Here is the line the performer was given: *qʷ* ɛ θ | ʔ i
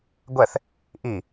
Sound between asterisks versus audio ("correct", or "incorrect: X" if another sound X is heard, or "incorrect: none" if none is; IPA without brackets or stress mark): incorrect: ɡʷ